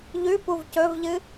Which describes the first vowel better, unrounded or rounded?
rounded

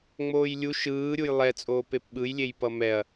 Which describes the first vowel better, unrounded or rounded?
rounded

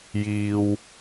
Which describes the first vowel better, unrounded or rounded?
unrounded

